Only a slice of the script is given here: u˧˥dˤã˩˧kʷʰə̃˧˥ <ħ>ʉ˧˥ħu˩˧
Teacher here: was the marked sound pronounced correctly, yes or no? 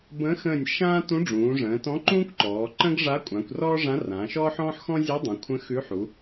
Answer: no